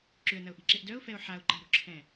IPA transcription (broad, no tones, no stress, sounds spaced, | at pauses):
ǁ ʏ ə̯ n ɐ ʊ̯ ʔ i̤ ǁ e ʔ d œ ʊ̯ f ɛ ʊ̯ ħ a ʊ̯ ǃ a̤ ɾ o̤ ǁʰ ɛ̃